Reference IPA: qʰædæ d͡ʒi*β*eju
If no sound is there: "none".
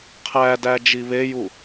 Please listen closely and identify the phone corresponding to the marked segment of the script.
β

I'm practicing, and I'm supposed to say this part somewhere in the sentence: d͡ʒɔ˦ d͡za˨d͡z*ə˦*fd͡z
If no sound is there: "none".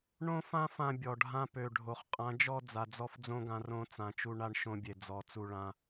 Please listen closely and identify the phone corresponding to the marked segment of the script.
ɔ˦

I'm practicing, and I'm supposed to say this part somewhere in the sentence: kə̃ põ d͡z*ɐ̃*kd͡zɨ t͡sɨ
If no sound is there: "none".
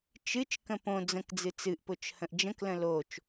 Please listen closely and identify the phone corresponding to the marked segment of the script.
ə̃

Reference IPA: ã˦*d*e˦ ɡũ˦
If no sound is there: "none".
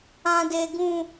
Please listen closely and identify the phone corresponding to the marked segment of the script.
d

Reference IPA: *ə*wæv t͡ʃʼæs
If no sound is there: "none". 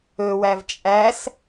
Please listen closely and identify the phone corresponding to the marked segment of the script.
ɵ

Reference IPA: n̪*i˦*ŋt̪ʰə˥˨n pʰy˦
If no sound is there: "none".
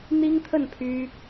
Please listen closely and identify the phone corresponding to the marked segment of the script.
i˦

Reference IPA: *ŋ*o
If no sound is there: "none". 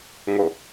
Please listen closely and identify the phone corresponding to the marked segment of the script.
ŋ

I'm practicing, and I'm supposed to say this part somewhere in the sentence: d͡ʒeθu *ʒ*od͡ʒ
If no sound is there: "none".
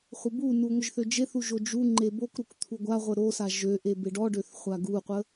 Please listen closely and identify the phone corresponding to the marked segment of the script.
ʒ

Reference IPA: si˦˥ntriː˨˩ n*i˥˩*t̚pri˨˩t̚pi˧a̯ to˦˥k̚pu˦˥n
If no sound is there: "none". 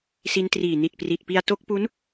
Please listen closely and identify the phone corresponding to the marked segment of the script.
i˨˩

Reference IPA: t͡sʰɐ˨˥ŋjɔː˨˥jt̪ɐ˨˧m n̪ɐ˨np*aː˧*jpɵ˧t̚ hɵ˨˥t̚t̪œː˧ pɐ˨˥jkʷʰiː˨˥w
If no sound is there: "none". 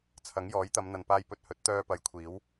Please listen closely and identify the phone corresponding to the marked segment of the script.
aː˧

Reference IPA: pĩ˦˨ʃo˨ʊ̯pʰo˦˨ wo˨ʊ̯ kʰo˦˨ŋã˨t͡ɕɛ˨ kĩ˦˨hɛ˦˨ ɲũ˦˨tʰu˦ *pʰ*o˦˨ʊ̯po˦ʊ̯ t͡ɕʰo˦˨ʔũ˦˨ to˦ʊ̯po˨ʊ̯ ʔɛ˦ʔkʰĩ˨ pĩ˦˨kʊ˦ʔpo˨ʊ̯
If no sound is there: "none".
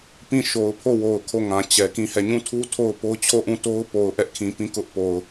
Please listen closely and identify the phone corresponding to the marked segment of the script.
tʰ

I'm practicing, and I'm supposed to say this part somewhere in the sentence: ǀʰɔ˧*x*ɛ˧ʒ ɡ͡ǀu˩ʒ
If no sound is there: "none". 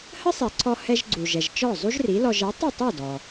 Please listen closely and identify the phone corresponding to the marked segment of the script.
h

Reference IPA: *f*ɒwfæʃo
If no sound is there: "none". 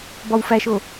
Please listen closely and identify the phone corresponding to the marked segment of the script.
b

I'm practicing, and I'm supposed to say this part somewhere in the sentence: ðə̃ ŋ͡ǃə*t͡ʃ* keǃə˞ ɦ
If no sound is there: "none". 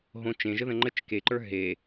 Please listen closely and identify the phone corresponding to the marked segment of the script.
t͡ʃ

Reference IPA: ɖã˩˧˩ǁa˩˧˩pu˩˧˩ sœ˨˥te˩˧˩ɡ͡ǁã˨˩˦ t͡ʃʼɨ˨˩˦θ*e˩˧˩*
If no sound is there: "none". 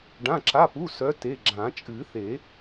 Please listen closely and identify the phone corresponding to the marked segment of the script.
e˨˩˦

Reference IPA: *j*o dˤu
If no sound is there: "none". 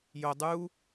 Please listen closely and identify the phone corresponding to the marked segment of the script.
j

